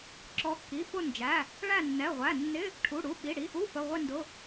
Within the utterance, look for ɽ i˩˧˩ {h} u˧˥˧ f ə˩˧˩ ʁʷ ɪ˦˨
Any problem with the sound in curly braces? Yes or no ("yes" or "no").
yes